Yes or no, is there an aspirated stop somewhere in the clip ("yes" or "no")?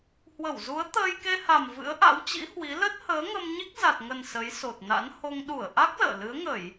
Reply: no